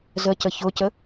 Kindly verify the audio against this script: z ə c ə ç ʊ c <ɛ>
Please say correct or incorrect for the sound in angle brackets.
incorrect: ə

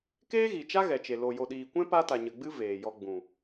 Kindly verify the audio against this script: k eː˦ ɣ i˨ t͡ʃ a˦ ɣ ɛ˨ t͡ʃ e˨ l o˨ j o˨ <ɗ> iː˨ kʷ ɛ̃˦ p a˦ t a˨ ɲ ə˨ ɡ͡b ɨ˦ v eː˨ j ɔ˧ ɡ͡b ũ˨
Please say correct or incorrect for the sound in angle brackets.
correct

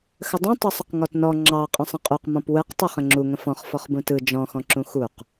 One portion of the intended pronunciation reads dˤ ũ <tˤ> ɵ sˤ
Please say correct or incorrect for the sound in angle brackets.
correct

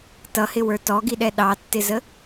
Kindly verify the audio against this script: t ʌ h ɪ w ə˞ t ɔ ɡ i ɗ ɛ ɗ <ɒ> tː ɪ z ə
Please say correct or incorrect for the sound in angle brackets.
incorrect: ɑ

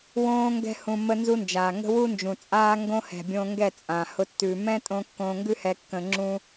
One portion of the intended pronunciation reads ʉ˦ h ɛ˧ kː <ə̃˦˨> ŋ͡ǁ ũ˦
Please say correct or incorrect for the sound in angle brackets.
incorrect: ə̃˧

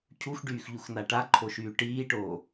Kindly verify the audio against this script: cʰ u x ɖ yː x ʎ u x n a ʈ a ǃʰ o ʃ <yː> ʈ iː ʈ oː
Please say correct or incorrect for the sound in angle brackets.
correct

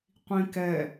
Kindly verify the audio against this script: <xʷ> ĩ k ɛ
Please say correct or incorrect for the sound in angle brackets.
incorrect: qʷ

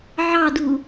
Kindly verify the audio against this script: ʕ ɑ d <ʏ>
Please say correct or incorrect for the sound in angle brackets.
incorrect: u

